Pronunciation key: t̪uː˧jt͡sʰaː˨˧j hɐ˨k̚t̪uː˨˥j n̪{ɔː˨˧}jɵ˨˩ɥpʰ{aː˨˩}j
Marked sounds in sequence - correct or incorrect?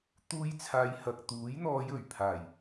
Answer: correct, correct

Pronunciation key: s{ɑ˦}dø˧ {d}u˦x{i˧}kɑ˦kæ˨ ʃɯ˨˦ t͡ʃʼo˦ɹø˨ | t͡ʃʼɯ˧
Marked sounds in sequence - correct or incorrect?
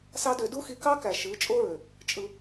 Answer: correct, correct, correct

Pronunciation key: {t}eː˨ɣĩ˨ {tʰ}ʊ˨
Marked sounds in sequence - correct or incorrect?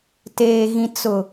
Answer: correct, incorrect

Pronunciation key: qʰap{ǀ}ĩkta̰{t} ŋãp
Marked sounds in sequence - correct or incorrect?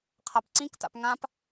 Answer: correct, incorrect

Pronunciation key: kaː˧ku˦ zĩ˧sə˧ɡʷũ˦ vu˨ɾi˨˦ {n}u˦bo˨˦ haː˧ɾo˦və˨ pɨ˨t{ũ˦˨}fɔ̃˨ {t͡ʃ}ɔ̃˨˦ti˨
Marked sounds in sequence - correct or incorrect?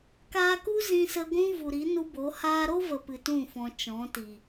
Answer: correct, correct, correct

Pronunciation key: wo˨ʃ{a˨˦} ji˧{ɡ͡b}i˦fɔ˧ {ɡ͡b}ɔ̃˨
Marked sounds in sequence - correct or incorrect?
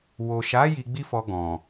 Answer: correct, correct, incorrect

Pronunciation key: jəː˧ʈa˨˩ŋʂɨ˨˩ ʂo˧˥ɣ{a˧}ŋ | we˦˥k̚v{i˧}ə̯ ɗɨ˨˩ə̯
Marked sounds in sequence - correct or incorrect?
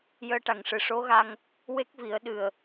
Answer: correct, incorrect

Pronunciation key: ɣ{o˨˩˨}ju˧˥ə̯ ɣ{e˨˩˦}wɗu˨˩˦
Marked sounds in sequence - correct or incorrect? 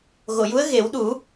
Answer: correct, correct

